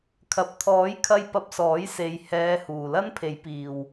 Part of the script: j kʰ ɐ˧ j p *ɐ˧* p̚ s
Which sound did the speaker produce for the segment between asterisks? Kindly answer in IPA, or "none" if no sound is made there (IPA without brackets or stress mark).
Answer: ɐ˧